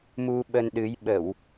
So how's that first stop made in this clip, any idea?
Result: implosive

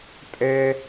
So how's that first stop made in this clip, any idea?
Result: ejective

